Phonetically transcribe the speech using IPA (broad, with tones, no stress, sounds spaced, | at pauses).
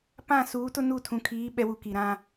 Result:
p ã˦˨ s uː˨˦ t ʊ˦ n u˦˨ tʰ ũ˨ kʰ iː˨˦ ɓ ɛ˦ w u˦˨ k i˨ ɾ ã˦